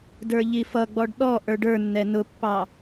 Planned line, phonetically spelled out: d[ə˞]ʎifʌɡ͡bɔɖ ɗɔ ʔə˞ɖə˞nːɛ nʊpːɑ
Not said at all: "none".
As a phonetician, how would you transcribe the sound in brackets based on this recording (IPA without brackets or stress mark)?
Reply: ə˞